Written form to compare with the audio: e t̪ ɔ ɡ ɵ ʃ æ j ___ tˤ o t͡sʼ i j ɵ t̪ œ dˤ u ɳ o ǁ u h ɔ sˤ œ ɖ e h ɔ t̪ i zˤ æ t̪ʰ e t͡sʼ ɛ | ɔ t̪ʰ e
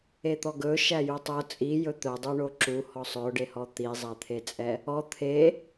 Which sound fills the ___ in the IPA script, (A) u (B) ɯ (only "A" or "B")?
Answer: A